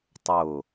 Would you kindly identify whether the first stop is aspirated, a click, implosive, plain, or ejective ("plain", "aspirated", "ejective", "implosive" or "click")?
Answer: plain